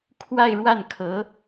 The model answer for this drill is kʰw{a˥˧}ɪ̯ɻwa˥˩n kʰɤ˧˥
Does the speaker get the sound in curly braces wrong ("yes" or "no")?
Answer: no